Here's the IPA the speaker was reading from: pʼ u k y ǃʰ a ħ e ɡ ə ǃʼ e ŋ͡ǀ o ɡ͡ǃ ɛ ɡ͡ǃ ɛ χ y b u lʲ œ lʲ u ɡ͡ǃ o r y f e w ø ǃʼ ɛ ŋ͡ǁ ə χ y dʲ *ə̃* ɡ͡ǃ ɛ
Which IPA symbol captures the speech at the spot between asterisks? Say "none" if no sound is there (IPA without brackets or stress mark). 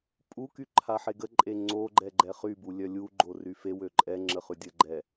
ə